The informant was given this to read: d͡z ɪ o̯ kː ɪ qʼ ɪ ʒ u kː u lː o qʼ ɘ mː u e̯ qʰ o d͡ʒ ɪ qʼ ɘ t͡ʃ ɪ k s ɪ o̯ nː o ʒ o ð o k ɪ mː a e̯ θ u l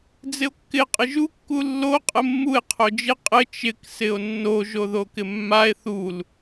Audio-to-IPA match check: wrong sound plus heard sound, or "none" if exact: none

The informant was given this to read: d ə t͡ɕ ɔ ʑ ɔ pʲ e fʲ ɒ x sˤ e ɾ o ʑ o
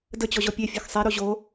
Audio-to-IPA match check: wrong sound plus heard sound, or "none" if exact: none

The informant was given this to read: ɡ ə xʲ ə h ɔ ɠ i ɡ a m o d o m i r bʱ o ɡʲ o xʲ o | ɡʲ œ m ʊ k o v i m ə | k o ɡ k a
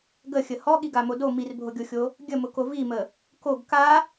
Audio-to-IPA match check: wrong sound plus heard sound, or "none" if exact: œ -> ə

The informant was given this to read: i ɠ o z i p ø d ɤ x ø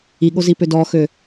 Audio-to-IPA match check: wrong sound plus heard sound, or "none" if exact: ɤ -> ɔ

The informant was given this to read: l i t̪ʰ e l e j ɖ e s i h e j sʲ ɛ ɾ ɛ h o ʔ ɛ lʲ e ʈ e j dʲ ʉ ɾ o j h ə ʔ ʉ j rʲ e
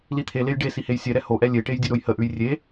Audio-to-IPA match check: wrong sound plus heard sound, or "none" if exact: none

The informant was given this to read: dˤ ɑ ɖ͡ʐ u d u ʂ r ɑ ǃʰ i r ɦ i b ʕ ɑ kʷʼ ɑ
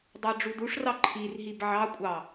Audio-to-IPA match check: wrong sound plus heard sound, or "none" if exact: none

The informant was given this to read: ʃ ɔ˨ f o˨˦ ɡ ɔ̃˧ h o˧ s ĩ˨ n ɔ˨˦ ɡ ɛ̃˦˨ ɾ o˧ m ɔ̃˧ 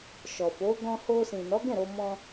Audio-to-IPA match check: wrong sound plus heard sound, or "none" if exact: none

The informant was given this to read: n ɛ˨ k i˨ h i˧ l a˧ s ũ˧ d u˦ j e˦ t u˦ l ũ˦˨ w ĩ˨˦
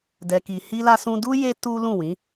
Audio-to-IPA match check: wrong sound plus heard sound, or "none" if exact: n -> d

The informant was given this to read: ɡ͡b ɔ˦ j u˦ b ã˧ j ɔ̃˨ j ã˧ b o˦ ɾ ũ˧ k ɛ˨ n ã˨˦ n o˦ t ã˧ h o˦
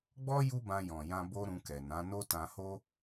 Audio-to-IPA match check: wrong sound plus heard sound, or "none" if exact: none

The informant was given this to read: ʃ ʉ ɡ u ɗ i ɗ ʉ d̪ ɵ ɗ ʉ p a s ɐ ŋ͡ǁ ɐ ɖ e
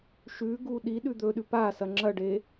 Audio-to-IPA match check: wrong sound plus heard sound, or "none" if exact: none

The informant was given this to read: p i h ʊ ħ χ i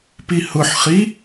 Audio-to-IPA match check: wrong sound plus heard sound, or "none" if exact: none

